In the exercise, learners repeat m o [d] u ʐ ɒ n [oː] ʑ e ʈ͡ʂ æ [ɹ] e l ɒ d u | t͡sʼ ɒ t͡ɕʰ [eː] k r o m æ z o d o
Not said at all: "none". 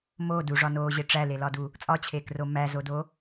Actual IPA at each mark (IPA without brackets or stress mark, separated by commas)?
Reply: d, oː, l, eː